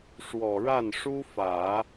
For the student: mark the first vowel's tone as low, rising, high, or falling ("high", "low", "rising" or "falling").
low